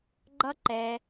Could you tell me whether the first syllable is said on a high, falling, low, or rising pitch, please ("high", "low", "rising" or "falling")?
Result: high